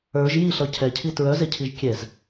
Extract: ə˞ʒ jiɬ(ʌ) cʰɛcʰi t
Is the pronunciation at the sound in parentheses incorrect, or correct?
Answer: correct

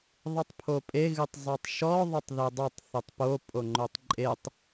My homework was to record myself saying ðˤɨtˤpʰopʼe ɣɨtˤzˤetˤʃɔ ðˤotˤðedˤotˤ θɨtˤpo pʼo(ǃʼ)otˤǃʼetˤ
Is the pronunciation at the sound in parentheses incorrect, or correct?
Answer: incorrect: ŋ͡ǃ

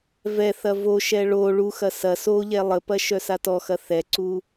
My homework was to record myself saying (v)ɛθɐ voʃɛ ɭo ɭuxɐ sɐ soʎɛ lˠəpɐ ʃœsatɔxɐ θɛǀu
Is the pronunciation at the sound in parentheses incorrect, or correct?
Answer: correct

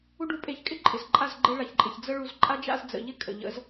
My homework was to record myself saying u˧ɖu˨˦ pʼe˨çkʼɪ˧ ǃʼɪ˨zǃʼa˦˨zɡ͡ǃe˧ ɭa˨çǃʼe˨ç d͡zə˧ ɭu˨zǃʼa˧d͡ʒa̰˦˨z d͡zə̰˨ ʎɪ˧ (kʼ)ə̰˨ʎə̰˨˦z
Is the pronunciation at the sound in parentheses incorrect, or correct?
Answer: correct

